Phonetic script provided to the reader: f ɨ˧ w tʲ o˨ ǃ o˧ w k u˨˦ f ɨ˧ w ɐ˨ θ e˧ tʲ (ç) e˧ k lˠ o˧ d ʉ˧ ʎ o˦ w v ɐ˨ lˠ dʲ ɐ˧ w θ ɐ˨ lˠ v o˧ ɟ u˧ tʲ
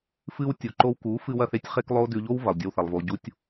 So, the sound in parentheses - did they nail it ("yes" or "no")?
no